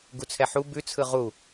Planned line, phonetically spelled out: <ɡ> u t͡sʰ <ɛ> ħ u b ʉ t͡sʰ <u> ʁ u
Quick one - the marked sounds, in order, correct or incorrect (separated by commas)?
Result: correct, correct, incorrect